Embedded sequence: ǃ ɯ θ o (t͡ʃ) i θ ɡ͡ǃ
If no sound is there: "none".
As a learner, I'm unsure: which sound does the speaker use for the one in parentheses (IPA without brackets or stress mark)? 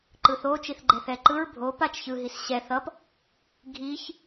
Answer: t͡ʃ